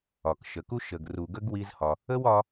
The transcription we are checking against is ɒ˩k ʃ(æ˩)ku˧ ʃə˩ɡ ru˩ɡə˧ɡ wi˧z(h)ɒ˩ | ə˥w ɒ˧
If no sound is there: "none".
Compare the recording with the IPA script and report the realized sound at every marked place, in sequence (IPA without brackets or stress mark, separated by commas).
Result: ə˩, h